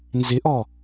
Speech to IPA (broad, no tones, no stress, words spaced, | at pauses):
nzɪʔɔ